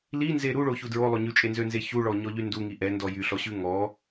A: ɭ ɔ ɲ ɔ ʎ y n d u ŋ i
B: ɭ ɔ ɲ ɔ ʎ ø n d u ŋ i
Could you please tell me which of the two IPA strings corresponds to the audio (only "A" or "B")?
A